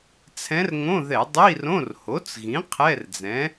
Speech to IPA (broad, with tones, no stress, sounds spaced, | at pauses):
t͡sʰ ɛ̃˧˥ r ŋ õ˧˥˧ ð ɛ˧˩˧ dˤ i˧˥˧ r õ˧˥˧ r h o˩˥ t͡s ɣ ĩ˩˥ qʰ ɛ˧˥˧ r d͡z ɛ̃˩˥